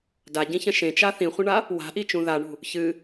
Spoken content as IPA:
d a ɟ ĩ ç ɐ̃ ʃ ẽ t͡ʃ a θ ĩ χʷ ɐ̃ ɳ a | w a̤ ʔ i t͡ʃ ũ ð a ɳ ṳ | ç ɨ

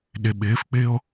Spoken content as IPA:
ɗ ɪ ɓ ɪː f k͡p ɪː o̯

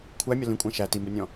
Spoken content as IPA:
kʷʰ æ mʲ ɒ l ĩ kʷʼ æ̃ ʃ æ t i m b ə nʲ ɔ̃

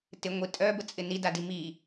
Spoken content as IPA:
t ɪ ŋʷ i tʼ œ b ə t͡sʼ ɪ n i d a d i m i

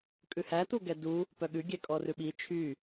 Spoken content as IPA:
kʼ ʉ h æ t̪ u ɡ ɛ d u | p œ ɠ ʉ ɡʲ ɛ kʼ ɔ r ʉ ɓ i t͡ʃʰ y

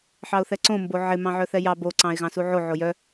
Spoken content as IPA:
ħ ɑ ʊ̯ θ ɛ ǀ õ m b o ʕ ɪ m ɑ̃ ʕ œ θ ɛ j ɑ b o ǀ ɑ̃ ɪ̯ ɣ ɑ̃ s u ʕ o ʕ o j œ

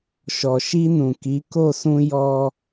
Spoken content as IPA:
ʃ ɔ˨ ʃ i˧ n ũ˨ k i˨˦ k o˦˨ s ũ˧ j ɔ˧

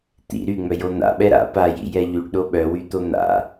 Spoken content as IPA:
t̪ ḭ ɾ y ŋ͡m œ j o n̪ a̰ ɓ ɛ ɾ a̰ p a j ḭ j ɛ ʎ y ɖ ɗ o ɓ œ w y t̪ o n̪ a̰

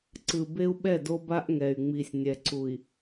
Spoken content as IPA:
ǀ ɯ˨ b e˦ u̯ ɓ ɛ˦˨ d o˦ b a˦ ʔ ŋ ɛ˨ y̯ ŋ͡m i˨ sʲ nʲ ɛ˨ ǀ u˨ i̯

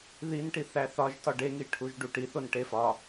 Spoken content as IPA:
ð i n ʈ i θ æ θ ɒ ʒ t ɒ ɖ e ŋ i ʈʰ u ʒ ɖ u ʈ i θ o n ʈ e f ɒ

